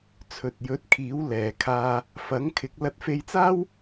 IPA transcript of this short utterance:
t͡sʰɵ˨t̚jɵ˨˥t̚ kʰiː˨˥w lɛː˨kʰaː˧ | fɐ˨˥ŋkʰɪ˨˥k̚ lɐ˨˥t̚fe˧jt͡saː˥w

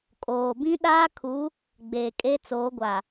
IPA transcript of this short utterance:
kʼoː˨ bĩ˦ɗaː˦kʰu˨˦ | ɡ͡beː˨kʼe˦t͡soː˨˦ɡʷa˨

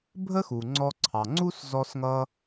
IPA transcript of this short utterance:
bʱə˥xu˩ŋ͡ǀɔ˧ǀʰɑ˩ ŋ͡ǀu˥szɔ˧sŋʌ˧

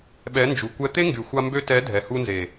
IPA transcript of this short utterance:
ɓɛ˨˦ nd͡ʒu˨kʷɛ˧ t̪e˦ŋɡy˨xʷa˧ mbø˧tɛ˨˦ dʱɛ˨hu˧nze˨

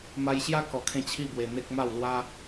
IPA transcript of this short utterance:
ma˧jɕja˦kɔ˨˩kʰẽ˧ t͡ɕʰi˥˧bwe˧n̪e˦k̚ ma˥˧w lwa˦

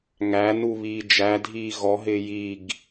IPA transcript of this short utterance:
ŋænu βiːd͡ʒædʱiː ɣɔɦɪː jiɡ

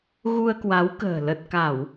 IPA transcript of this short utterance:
ɣu˧ə̯kwa˨˦wkə̤ː˨˩ lə˨˩t̚ka˧˩˨w

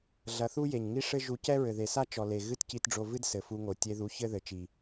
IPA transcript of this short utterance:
ɮɐ˧θu˦je˨ɲ ŋi˦ʂɘ˦ ʒu˧cɛ˦ɹɘ˨ ðe˨sa˦ t͡ʃɔ˨ le˨ ɣɨ˦tci˧tɖ͡ʐo˧vɨ˦d sɘ˨fu˧ŋo˨ tʲe˧ðu˨˦ çɘ˦ðɘ˨ t͡ʃi˨

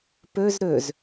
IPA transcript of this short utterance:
pɵz ɾɵz

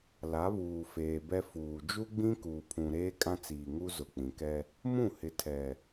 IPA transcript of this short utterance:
la˨˦βuː˨feː˨bɛ˦ fuː˨ d͡ʒu˦ɡ͡bĩ˦kuː˨pʰũ˨ ɾeː˦kʼã˦t͡siː˨ŋu˦ zʊ˨k͡pĩ˨kɛ˦ | mũ˦˨ hɪ˨ tʰɛ˨

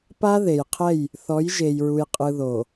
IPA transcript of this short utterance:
pa˦ ðe˨jqʰɛ˦˨j | θɔ˨˦j ʒe˨jɹu˨jqʼɯ˨ ðo˨

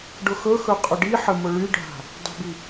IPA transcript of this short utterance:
ɖʊxɵxɵ qʼʊɖiħə mʊɭyɖʱa̤ | dˤə̤bi

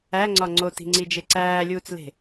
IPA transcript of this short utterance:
æŋ͡ǀɒ ŋ͡ǀoti̤ŋ͡ǀid͡ʒe ǀæːlʲuːt͡sle̤

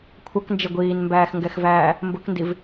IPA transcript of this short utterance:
kʷʰʌknd͡ʒɪ ɡʷiːnmbæːxŋɡɛxvæː | mbʊkndiv

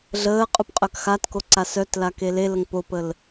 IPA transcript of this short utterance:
ɮəː qʼupqʼœkxatko ǀasœtla keleləŋ popəl

